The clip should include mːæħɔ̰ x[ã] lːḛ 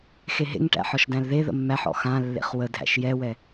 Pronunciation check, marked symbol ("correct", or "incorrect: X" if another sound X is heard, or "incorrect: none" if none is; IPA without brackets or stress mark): correct